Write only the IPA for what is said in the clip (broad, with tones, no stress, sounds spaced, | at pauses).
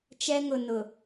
t͡ʃ ɛ˦ ŋ ʊ˨ n ʊ˨